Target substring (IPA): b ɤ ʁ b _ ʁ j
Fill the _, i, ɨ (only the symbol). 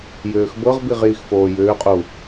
i